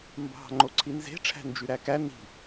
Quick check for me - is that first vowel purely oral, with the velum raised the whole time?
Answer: yes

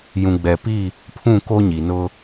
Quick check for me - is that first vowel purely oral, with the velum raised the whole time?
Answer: no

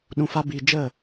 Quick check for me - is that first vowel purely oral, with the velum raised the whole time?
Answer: no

